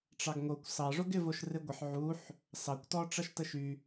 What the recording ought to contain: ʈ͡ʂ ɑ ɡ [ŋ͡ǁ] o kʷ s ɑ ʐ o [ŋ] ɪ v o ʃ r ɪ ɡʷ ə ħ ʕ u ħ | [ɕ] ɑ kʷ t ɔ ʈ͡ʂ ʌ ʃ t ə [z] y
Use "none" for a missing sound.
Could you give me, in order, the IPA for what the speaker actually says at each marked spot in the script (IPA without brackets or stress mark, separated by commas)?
ŋ, ɡ, s, ʃ